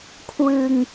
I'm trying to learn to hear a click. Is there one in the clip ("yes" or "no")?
no